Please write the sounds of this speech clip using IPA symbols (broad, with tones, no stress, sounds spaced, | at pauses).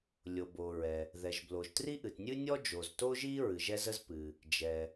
lʲ o˩ b o˩ ɹ ɛ˩ | ð ɛ˩ ʒ b l o˩ ʒ t r i˥ ʔ ɨ˩ t nʲ ɨ˥ nʲ ɔ˥ d͡ʒ o˩ z t o˥ ʒ i˥ ɹ ɨ˩ ʒ ɛ˥ z ə˥ z p ɨ˩ | d͡ʒ ɛ˩